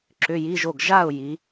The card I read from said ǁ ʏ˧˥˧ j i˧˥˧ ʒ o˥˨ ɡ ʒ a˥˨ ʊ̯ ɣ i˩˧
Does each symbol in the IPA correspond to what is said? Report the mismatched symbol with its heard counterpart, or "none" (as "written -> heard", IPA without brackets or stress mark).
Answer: ɣ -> j